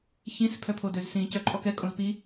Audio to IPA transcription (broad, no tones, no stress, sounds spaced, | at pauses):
ç ĩ s pʰ œ pʰ o d ø z s ĩ c œ ǃʼ ɔ k ɛ kʼ õ z p i